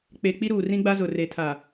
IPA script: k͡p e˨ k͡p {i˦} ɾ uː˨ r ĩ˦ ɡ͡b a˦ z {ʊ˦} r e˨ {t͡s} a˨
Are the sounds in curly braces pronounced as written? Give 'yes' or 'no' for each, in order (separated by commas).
yes, no, no